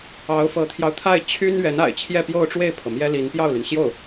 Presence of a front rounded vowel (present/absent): present